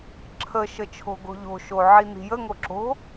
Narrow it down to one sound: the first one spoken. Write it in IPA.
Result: ǁʰ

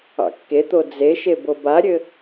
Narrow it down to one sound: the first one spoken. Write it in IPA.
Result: ɑ̰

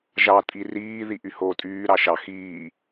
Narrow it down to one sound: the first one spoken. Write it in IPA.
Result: ʒ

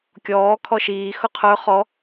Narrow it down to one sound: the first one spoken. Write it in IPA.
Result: kʲ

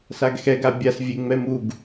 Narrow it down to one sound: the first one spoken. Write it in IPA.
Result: s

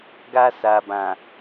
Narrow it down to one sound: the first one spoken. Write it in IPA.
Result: ɡ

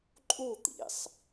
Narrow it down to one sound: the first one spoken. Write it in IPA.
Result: ǃʼ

